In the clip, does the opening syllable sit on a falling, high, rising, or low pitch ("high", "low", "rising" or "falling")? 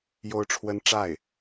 high